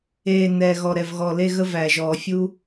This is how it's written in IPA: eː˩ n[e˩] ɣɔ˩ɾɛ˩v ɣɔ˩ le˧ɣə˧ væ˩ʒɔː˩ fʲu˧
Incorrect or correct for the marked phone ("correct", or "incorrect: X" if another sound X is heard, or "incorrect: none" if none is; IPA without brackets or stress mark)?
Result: incorrect: ɛ˩